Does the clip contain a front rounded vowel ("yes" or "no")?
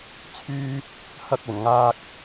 yes